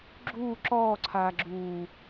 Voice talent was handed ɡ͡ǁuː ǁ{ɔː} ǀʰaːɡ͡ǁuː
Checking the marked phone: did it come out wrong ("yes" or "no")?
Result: no